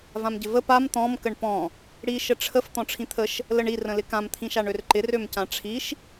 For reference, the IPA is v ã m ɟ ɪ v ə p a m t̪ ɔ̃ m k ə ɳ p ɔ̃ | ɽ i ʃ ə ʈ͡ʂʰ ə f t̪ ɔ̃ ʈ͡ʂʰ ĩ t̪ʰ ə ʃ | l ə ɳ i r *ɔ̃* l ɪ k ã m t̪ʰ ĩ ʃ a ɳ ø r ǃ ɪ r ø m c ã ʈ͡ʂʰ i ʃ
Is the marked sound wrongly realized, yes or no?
yes